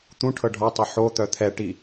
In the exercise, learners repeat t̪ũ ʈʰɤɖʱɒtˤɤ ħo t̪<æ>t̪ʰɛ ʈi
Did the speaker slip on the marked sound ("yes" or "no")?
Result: yes